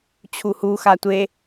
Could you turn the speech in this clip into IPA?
t͡ɕʰ u h u x a tʷ e

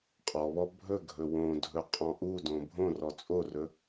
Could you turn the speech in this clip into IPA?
qʼ ɔ β ɔ bʱ ɵ ɡʱ ɵ w õ dʱ ɵ qʼ ɔ̃ ʔ u d õ bʱ õ r ɔ t͡sʼ o r ɵ

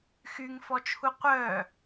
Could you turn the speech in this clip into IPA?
x y ŋ f ɔ t͡ʃʰ u qʷ œ

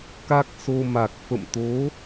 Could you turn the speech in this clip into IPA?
k a˦˥ k̚ s o˧ m a˨˩ k̚ f ə̰˧˨ m t̪ o˨˦

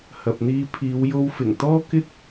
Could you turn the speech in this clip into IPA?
h ɐ˨ p̚ n̪ iː˧ pʰ iː˨˧ w j o˧ w f ɪ˨˩ ŋ t̪ ɔː˥ k ɪ˥ k̚

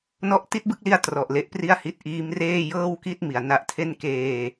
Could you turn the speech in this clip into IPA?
n ɔ˦˥ ʔ t i˥˩ t̚ b ɯ˥˩ k̚ l i˦˥ a̯ t r ɔ˨˩ ʔ l e˦˥ ʔ p r i˥˩ a̯ h i˥˩ t̚ ʔ iː˦˥ m r eː˥˩ j ɤː˥˩ w k i˥˩ t̚ m i˨˩ a̯ n a˦˥ ʔ tʰ e˥˩ n k eː˧

